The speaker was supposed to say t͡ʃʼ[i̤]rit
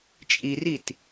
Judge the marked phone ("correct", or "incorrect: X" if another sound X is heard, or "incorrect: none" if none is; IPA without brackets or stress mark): incorrect: i